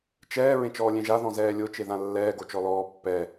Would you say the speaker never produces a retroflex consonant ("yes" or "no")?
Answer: yes